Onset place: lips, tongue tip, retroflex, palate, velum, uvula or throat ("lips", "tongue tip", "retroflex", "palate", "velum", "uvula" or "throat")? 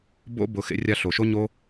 lips